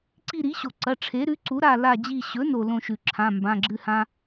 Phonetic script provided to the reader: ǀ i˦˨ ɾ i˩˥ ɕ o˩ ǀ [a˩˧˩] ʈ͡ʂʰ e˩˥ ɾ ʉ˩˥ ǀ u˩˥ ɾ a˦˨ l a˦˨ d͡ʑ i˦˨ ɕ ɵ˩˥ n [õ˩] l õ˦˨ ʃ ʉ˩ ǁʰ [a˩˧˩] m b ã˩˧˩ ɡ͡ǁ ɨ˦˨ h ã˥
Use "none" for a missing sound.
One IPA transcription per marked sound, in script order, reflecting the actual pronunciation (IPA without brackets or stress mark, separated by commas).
ɐ˩˧˩, o˩, ã˩˧˩